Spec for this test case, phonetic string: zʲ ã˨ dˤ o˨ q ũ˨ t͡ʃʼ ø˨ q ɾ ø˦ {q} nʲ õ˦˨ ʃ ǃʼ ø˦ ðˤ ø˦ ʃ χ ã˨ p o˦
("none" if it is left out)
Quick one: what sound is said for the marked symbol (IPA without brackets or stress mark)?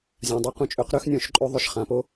x